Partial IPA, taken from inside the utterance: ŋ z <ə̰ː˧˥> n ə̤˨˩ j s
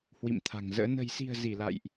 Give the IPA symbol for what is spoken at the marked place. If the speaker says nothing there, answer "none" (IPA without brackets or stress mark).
ə̰ː˧˥